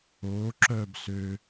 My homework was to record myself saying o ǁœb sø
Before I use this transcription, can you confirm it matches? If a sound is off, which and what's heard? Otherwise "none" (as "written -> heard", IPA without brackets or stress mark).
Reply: none